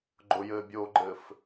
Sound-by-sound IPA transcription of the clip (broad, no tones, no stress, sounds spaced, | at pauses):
ɡ͡ǃ ʊ j ɘː bʲ oː ɡ͡ǃ ɘː f